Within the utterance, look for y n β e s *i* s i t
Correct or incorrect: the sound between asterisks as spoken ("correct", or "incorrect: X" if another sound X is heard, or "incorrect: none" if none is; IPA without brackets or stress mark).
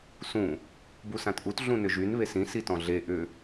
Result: incorrect: ĩ